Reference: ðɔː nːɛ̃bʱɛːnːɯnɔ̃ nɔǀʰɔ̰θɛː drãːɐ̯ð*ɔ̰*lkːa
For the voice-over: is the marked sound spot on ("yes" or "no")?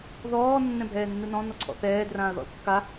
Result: yes